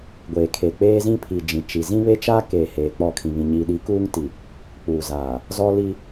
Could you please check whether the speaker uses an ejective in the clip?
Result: no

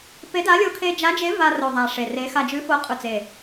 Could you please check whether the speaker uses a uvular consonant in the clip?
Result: yes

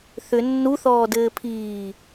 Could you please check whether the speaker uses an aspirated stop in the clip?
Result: yes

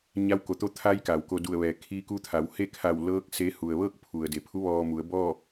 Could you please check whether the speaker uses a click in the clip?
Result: no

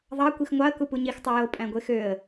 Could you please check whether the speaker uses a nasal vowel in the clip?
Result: yes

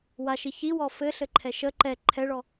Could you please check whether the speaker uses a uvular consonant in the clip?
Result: no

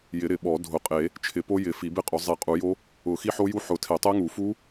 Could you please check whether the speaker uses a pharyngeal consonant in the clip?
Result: yes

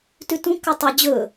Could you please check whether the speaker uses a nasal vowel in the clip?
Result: yes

